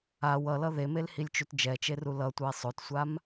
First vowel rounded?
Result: no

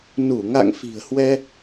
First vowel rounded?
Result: yes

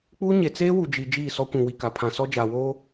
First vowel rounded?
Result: yes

